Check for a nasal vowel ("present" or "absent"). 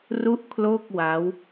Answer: absent